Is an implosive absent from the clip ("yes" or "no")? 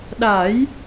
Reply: no